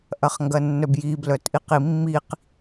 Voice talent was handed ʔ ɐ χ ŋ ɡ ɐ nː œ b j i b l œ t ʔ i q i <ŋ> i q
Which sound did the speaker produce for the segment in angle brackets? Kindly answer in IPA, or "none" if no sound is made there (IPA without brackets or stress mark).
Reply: mː